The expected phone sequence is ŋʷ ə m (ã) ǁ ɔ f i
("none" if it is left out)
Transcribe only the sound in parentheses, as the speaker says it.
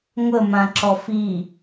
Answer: ã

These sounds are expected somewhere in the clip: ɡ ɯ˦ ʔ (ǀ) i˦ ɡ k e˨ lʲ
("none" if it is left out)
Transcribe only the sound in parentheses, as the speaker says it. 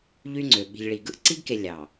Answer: ǀ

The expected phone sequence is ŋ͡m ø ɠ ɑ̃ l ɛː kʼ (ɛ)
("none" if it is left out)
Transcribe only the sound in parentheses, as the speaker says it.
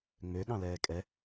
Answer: ɛ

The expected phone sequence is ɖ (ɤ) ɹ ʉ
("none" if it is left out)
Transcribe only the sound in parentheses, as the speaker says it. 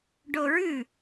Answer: o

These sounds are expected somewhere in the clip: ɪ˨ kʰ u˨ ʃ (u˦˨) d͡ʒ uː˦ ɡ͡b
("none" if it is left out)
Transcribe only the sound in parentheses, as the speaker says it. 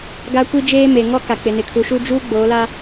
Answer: u˦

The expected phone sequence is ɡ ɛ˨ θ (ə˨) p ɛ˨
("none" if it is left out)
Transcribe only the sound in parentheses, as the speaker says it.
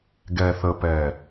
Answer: ə˨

